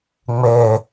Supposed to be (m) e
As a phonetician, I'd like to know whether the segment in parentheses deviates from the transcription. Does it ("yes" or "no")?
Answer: yes